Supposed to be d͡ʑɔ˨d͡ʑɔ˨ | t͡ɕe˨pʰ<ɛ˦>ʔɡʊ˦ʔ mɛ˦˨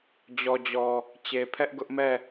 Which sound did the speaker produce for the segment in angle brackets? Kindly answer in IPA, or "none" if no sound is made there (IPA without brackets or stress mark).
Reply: ɛ˦